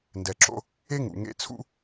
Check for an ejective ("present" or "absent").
absent